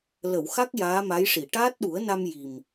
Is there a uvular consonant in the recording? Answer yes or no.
no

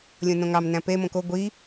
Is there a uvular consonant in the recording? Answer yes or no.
no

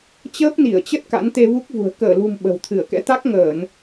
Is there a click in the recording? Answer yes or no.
no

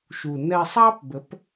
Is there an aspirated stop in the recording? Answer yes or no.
no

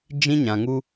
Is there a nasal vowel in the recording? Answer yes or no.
yes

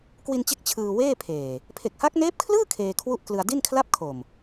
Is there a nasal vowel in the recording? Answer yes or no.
no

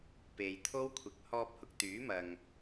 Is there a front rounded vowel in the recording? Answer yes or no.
yes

